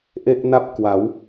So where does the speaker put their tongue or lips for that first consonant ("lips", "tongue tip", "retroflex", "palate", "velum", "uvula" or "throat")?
throat